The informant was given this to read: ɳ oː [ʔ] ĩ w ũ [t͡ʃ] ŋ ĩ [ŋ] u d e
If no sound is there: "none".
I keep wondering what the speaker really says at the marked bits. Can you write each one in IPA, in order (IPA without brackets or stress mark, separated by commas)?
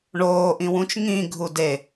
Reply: ʔ, t͡ʃ, ɡʱ